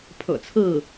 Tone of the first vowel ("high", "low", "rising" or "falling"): low